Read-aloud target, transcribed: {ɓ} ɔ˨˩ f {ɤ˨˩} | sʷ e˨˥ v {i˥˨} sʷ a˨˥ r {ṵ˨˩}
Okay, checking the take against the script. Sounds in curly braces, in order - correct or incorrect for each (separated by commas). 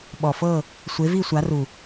correct, incorrect, correct, incorrect